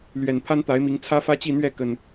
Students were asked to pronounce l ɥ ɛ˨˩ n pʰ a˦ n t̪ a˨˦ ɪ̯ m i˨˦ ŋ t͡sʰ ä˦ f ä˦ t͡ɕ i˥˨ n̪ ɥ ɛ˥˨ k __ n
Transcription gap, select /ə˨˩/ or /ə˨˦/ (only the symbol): ə˨˩